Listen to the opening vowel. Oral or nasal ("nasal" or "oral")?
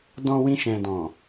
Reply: nasal